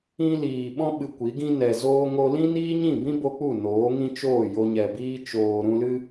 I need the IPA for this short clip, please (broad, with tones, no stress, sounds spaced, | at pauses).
ĩ˧ l iː˨ ɓ ɔ̃˧ ɓ ɨ˨ kʷ i˨˦ ɡ ĩ˦ n ɛ˨ z oː˧ ŋ o˧ l ĩ˦ n iː˦ ɲ ĩ˦˨ b ĩ˦ b o˦ k͡p u˦˨ n oː˨˦ ŋ ĩ˦ t͡ʃ oː˦˨ j o˧ ɲ ɛ˨ b iː˦ t͡ʃ oː˨ ɾ ũ˧ l ɨ˦